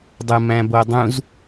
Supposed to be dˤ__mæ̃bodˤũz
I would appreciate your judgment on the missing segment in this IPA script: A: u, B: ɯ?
B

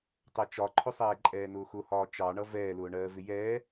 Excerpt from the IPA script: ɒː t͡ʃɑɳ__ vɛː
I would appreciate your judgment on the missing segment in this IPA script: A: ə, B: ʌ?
B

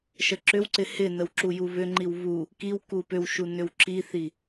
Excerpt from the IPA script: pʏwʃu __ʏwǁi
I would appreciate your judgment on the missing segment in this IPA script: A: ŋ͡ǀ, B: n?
B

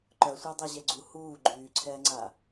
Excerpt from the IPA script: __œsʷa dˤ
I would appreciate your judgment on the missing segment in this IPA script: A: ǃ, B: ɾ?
A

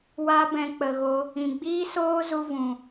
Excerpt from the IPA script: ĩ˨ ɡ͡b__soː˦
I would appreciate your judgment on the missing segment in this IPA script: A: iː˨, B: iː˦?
B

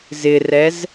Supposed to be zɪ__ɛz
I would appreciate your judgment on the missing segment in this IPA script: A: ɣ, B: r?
B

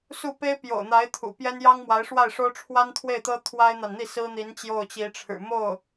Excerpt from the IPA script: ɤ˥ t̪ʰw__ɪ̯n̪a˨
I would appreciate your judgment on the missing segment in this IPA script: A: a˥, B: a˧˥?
A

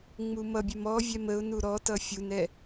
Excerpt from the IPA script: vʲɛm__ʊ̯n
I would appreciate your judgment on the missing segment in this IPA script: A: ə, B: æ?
A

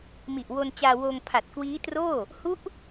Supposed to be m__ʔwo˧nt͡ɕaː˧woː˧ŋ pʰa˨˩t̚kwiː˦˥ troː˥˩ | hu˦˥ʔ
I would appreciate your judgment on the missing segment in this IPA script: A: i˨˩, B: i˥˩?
A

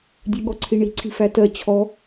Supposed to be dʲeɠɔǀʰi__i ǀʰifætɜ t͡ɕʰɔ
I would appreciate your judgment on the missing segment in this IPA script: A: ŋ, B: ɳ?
B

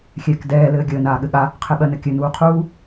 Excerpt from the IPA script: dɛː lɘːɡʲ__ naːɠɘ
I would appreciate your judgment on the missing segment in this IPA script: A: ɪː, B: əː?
B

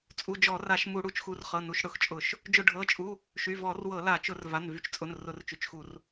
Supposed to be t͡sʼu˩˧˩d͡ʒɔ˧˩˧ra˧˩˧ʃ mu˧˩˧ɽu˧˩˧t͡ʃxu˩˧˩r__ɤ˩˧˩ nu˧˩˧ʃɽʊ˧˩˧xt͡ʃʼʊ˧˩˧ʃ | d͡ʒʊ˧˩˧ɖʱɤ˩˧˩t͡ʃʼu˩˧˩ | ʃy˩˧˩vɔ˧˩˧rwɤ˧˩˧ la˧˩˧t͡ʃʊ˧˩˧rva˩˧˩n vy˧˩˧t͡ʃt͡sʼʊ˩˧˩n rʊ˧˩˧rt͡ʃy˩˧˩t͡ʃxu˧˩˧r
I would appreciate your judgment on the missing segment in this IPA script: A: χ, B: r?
A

